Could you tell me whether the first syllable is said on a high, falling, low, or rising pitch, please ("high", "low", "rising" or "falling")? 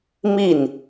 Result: falling